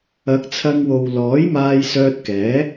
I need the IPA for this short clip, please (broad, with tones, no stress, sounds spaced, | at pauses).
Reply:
ɐ˨˥ k̚ t͡sʰ ɐ˧ ŋ w o˨ w l ɔː˨˥ j m aː˧ j s œː˧ t̚ k ɛː˨˥